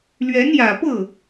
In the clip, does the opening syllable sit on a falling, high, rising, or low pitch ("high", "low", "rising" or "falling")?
rising